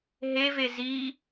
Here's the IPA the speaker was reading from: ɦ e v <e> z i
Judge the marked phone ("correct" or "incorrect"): correct